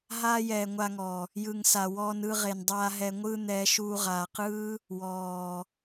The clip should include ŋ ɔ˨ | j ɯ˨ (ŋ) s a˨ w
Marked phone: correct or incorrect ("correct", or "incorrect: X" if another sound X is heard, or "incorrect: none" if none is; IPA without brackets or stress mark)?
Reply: correct